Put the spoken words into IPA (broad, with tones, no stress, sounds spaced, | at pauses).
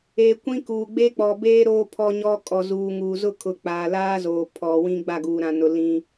e˨ kʷ ĩ˦ k uː˨ ɡ͡b e˦ k͡p ɔ˨ b eː˦ ɾ oː˦ pʰ ɔ˦ ɲ ɔ˦ kʼ ɔ˨ z uː˨ ŋ uː˨ z ʊ˦ kʰ ʊ˨ k͡p aː˨ l aː˦ z oː˨ pʰ ɔ˨ w ĩ˦ ɡ͡b a˦˨ ɡ uː˨ ɾ ã˨ n ʊ˨ l ĩ˦